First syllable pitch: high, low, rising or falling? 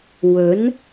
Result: rising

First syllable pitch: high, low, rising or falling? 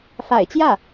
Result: low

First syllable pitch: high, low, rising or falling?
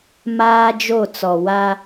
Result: high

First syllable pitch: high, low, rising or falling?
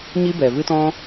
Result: high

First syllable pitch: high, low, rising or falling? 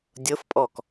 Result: rising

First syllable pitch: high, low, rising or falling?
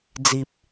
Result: low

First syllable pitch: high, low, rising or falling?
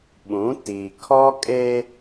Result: rising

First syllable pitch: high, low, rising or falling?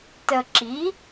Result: low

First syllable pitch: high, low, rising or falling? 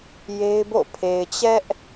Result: high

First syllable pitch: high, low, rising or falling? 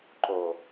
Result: low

